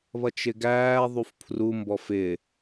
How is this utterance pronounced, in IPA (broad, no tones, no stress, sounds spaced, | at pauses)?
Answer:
β ʌ t͡ʃ ɪ ɡ æː ðˤ u f pʰ r u m b ɔ f ɪː